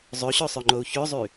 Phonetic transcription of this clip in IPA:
zˤ ø ɕ ø sˤ ø ŋ͡ǃ o u̯ ç ø zˤ y

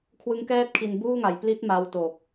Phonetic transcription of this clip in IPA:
kʰ w ɯ˦˥ ŋ k ɛː˥˩ t̚ kʰ i˧ n b uː˥˩ ŋ a˨˩ j p l i˦˥ t̚ m a˧ w t o˨˩ k̚

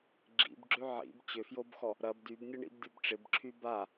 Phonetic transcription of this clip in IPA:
ɡ͡ǁ ḭ b ɡ͡ǁ ø ʕ ḭ b t͡ɕ ʏ f j o b x ɔ | ɾ ɐ b d y b nʲ ɐ ɳ ḭ b dʲ ɔ b ʈ͡ʂ ɪ b ǁʰ y b a

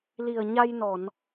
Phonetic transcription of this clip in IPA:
l i˨˩ ə̯ ɲ a˧ j n ɔ˨˩˨ n

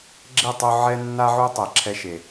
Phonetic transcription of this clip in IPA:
ɡ͡ǁ e˦˨ tˤ o˧ ʕ ɛ˦ nː a˦ ʕ u˦ tˤ ɛ˨ ǁʰ ɛ˧ ʃ e˨

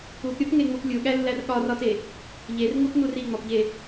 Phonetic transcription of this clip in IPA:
u p ɾʲ o p ŋ e ŋ͡m u p lʲ u ɠ æ lː æ r ɠ ɒ r ɒ t e | ʎ e r ŋ u p n u r i ŋ͡m ɒ p ʎ e

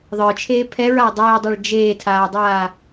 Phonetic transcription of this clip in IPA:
ðˤ ə˞ t͡ʃʰ eː pʰ ɛ ɹ a dˤ eː dˤ a ɭ d͡ʒ eː tʰ aː dˤ aː

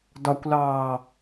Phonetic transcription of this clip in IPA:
d ɒ kʷ l ɑː

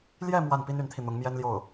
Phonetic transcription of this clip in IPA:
l j ɛ˥˧ m w a˥˩ n p i˥ n y˧˥ n t̪ʰ i˧ n̪ ʊ˧˥ ŋ m j ɛ˥ n l j o˥˩ ʊ̯

